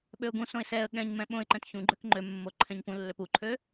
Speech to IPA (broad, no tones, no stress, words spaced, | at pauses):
ɓøʊ̯ɡũsõɪ̯ sɛə̯ ɠɛ̃ɲmɛ̃ ɓõɪ̯ǃɛ̃t çũɡ͡ǃøk ŋ͡ǃømːo ǃʰɛ̃ɲpũlːøp uǃʰø